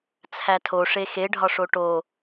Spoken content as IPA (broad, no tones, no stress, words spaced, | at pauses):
t͡sʰætʰo ʂexe ɖʱɒʂoʈo